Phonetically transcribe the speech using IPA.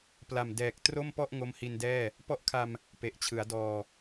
pla˨˩mdɛː˨˩k̚ tro˥˩mpɔ˥˩ʔ ŋo˦˥mhi˧ndɛː˥˩ | pɔ˦˥ʔkʰa˧m | pe˨˩ʔt͡ɕʰɯ˩˦a̯dɔː˧

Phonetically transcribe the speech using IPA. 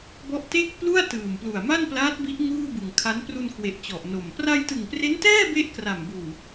bɔ˦˥ʔte˥˩k̚plu˥˩a̯ tɯː˨˩mplu˨˩a̯ma˥˩nplaː˦˥t̚ bi˦˥ʔ ŋuː˥˩bɯ˨˩ŋ kʰa˦˥n pru˧nkwe˨˩ʔ t͡ɕɔ˨˩ʔno˨˩m pra˧jtɯ˨˩ŋpre˦˥ntɛː˥˩ be˥˩ʔkra˨˩mbuː˨˩

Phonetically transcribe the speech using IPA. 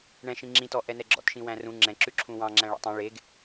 ɳɛ̃ʃĩ ŋ͡ǁĩtɔ ʔɛnɛɡ͡ǁɔ̰tʃĩ wæ̃rũ ŋ͡ǁɛ̃ǁʉ ǁʰũwɑ̃ ŋ͡ǁæ̃ɭɔ̰tˤĩ ɭeɡ

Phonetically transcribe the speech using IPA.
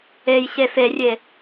ej ɕeferʲe

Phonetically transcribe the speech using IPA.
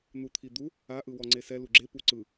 n̪ut̪ʰid̪u | a ʔɯwɔŋ͡ǀesɛ luɡ͡ǁe puǀɯ

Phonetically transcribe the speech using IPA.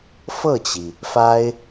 fɤ˥˩t͡ɕi˩ | fa˥ɪ̯

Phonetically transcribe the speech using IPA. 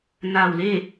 naː˧˩wle˥˨

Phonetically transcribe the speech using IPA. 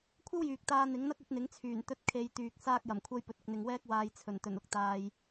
kʷʰɐ˥wjyː˨k̚ t̪aː˧n̪ɪ˨˥ŋn̪ɐ˥k̚ ɵ˨˥t̚n̪ɪ˨˥ŋt͡sʰyː˨˩n t̪ɵ˧t̚ kʰe˨j t̪yː˨k̚saː˥k̚jɐ˨˩mkʷʰɐ˥j pɵ˨t̚ɪ˨k̚ n̪ɪ˨ŋwɛː˥k̚ waː˧jt͡sʰɵ˨˩n t̪ɵ˨˩nʊ˥k̚t̪aː˧j

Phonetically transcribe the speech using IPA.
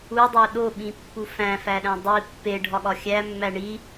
udˤo ɗoɓĩpːu fæ̃fæɗæ̃ dˤi pːeɖʱɒɠɒ xʲæmːæ ɳi

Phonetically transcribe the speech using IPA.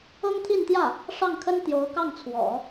ɤ˥ŋt̪ʰi˥˧nt̪jä˥˩ | ʂɑ˥˩ŋkʰə˥n t̪jo˧˥ʊ̯kɑ˥˩ŋt͡sʰwɔ̰˨˩˦

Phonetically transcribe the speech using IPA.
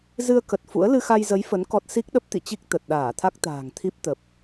zɨ˧ə̯kə˨˩t̚ fṵ˧˥ə̯ lɨ˧xa˧jzə˨˦j fə˨˦n kɔ˦˥t̚ si˦˥k̚ ɗə˦˥p̚t̪ḭ˧˨t͡ɕi˦˥k̚ t̪ə˨˩t̚ɗaː˧˩t̪ʰa˦˥k̚t̪a̤ː˨˩ŋ t̪ʰi˦˥p̚t̪ə˨˩p̚

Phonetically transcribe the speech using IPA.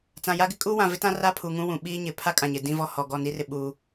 t͡sã˨ ja˦ɡɪ˦ kʼuː˦wã˨ vɪ˦tã˦ ra˦pʰu˨ ŋũ˦wũ˨ ɓiː˦ɲɪ˨ pʰa˦kʼã˨ɲɪ˨ dĩ˦vɔ˦ hɔ˨ɡɔ˦˨ ni˦rɪ˦ ɓuː˦

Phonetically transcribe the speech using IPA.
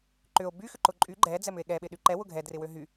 ǃʏo̯ by xʏǃʊǃʼy ɡ͡ǃɛ d͡zɛmʏe̯ɠɛ ɓɪɗyǃɛ wʊɡʱɛ drɪwøɦy

